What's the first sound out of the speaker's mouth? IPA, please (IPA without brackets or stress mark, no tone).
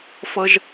f